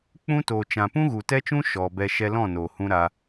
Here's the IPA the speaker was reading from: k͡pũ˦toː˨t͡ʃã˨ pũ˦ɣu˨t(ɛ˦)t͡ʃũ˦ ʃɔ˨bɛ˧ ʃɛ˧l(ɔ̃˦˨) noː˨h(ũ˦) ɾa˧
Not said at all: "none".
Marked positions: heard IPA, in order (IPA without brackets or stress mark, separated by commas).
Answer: ɛ˦, ɔ̃˦˨, ũ˦